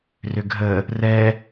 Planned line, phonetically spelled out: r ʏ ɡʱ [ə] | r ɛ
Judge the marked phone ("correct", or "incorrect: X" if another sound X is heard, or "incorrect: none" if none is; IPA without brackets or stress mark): correct